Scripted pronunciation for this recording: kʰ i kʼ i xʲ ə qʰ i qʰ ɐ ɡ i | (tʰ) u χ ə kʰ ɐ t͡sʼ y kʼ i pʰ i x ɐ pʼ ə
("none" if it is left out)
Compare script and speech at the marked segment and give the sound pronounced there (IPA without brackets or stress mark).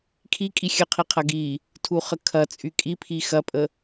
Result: tʰ